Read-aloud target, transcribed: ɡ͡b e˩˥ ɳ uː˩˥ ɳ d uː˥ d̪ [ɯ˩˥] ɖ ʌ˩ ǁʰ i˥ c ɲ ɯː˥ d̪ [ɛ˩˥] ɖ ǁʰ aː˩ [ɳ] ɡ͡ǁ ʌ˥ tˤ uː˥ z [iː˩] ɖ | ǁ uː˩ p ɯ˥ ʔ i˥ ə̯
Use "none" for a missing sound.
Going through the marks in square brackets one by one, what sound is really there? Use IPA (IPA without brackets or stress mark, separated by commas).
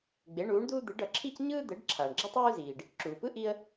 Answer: ɯ˩˥, ɛ˩˥, ɳ, iː˩